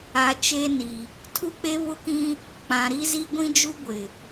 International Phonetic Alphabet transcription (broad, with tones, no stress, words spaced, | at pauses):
a˨ t͡ʃeː˦ni˨ | tʰu˦k͡pe˦βʊ˦kĩ˦ | k͡pã˨ɾi˦zi˦ ɡʷĩ˦d͡ʒu˦ɡʷɪ˨